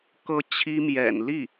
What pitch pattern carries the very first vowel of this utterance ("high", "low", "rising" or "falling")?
high